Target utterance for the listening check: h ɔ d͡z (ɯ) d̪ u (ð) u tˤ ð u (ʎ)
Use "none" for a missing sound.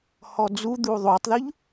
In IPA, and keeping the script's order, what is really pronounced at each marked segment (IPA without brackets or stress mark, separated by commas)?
u, ðˤ, ʎ